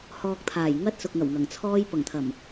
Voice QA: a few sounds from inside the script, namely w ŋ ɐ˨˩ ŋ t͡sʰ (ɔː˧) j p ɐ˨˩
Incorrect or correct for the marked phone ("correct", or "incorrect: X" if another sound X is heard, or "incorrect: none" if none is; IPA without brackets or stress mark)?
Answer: correct